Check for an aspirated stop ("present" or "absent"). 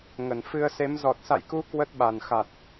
absent